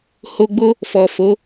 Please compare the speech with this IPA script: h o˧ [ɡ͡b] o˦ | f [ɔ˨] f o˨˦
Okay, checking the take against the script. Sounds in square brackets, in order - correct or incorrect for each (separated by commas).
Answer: correct, correct